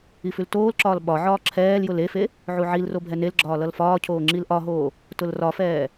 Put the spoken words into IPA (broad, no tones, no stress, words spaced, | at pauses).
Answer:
ifʉltoːlǁɒːl ɓɒʕɒː ǁʰɛːljʊl efe | ʕuʕilro bʱɛnelɡ͡ǁɒː lʌlfɒːcʰoː ŋ͡ǁilʔɒɦoː | tʊlrɒfɛː